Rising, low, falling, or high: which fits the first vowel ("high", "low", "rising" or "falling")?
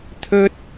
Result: high